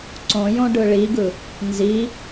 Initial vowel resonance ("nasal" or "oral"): nasal